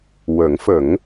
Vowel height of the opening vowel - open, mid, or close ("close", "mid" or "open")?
mid